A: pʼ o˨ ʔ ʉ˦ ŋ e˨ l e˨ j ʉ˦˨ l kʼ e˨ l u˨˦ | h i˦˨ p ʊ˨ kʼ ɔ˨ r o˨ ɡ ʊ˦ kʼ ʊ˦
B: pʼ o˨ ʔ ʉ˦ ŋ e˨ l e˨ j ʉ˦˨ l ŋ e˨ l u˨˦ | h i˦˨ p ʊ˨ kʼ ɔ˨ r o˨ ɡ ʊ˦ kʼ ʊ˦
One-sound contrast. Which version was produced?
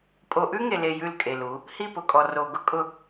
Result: A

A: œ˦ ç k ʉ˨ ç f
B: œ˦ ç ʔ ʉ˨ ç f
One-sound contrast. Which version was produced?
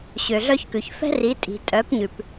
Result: A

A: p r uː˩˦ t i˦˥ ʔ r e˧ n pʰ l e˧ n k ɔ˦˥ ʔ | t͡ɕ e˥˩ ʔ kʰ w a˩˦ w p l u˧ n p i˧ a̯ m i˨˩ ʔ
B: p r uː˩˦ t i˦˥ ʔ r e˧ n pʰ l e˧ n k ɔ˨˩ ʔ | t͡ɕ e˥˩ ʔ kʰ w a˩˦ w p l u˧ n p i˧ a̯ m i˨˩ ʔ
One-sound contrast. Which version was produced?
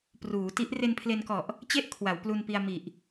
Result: B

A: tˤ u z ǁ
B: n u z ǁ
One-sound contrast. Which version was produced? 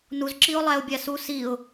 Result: B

